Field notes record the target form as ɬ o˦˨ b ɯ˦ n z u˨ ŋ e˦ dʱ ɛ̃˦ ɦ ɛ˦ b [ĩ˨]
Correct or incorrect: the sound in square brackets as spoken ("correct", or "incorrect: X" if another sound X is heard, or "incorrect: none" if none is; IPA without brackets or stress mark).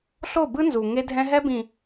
correct